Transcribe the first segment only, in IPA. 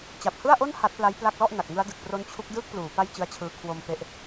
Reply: t͡ɕ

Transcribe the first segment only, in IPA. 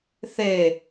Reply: θ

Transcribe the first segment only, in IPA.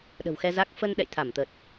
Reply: ɗ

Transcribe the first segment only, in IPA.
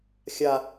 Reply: xʲ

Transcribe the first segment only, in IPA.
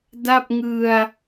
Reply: d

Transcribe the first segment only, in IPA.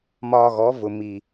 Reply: m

